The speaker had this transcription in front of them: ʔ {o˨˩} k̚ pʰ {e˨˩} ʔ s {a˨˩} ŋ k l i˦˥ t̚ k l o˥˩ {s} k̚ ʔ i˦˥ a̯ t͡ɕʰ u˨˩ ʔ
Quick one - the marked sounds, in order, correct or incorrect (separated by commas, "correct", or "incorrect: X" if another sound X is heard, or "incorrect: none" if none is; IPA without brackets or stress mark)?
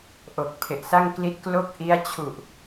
correct, correct, incorrect: a˥˩, incorrect: none